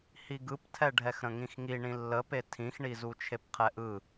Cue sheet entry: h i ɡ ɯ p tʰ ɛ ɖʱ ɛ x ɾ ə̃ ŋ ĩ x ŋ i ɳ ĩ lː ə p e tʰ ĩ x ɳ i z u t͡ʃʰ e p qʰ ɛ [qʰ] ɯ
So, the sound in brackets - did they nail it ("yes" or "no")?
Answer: no